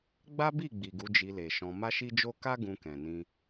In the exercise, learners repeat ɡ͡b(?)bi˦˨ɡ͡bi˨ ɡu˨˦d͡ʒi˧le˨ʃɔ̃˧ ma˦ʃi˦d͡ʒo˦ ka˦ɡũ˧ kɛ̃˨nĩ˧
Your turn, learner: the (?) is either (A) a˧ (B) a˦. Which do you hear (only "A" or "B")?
B